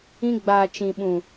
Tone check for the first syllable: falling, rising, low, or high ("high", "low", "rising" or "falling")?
high